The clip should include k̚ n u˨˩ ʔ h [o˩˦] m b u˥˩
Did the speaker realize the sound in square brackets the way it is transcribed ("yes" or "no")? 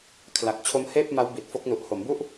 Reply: yes